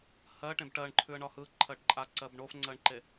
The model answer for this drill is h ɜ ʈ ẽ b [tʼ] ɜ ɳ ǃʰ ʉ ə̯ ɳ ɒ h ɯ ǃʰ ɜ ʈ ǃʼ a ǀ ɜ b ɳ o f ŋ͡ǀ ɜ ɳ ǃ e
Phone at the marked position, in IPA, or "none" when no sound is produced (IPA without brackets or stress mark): ʈ